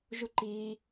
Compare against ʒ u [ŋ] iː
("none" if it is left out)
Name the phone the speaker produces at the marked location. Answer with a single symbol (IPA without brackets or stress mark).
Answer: ǃ